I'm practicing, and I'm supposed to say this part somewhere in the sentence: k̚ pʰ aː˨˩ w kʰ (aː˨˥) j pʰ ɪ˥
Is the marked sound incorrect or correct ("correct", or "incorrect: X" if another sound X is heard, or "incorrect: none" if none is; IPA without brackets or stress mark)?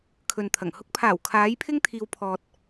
correct